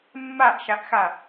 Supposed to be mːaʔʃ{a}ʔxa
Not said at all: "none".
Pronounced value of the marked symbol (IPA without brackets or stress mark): a